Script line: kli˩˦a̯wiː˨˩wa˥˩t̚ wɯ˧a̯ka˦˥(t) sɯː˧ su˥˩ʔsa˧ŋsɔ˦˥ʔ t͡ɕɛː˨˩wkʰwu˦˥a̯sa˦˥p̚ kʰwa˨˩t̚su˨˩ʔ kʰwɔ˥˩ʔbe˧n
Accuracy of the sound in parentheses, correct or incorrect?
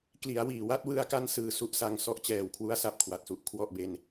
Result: incorrect